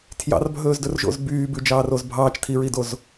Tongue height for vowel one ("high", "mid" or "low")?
low